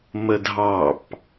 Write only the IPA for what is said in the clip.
m ə dʱ ɑ p

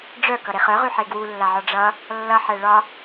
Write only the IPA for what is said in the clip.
ɖ͡ʐ œ k ʌ ɾ e χ œ ʁ y ħ e ɡ w u lː a ʕ ɒ ɖ͡ʐ ʌ | lː ʌ ħ ɛ ɭ ɒ

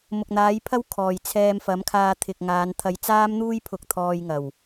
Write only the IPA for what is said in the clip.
m ʊ˨ k̚ n̪ aː˨˥ j pʰ ɐ˥ w kʰ ɔː˨˩ j t͡sʰ ɛː˧ m f ɐ˨˥ m kʰ aː˧ t̪ʰ ɪ˨ k̚ ŋ aː˨˧ n t̪ʰ ɐ˧ j t͡s aː˥ m n̪ uː˥ j pʰ ʊ˧ k̚ t̪ʰ ɔː˧ j ŋ ɐ˨˩ w

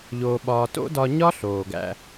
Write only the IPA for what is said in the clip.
ʎ oː˧ ɓ ɒː˧ t o̰˦ d ɒ˧ ɲ ɒ˦ ɬ oː˨ ɡ æ̰˦

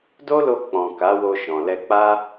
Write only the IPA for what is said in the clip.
d o˦ l o˧ k͡p ɔ̃˨ k a˨˦ w o˧ ʃ ɔ̃˨ l ɛ˧ k͡p a˦

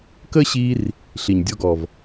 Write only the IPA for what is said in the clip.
k ə˦ ɕ i˧ r | ɬ i˨ ɲ dʲ ɔ˦ ɡ ɔ˨ v

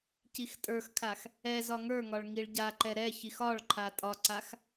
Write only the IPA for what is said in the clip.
c i x tʼ ə˞ x kʰ a x | ɛ z ɒ ŋ ə˞ ŋ ɒ ɭ ŋ i ɭ ɟ a ǃ ɛ ɾ ɛ ç i x ɒ ɭ ǃʰ a tʼ ɒ ǀ a x

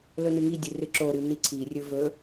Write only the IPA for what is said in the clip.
l ɵ n ɨ ŋ i dʲ ɨ r ɨ ǁ o ɾ ɨ n i ǀʰ i rʲ ɵ v ɵ

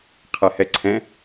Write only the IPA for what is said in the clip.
qʰ ɛ h ɛ ǀʰ ɛ̃

